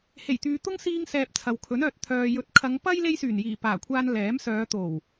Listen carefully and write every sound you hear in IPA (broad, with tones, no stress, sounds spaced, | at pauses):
h e˨˩ j t̪ yː˨ t̪ ʊ˥ ŋ s iː˧ ŋ s ɛː˨ p̚ t͡sʰ ɐ˨ w kʰ ɵ˨˥ n œː˨ t̚ t̪ʰ œː˨ j ɵ˨ t̚ kʰ ɐ˨˧ ŋ p ɐ˥ j l e˥ j s yː˨˩ n j iː˨˩ p aː˨˩ kʷʰ aː˧ n l ɛː˨˥ m s œː˨˧ t̪ o˨˩ w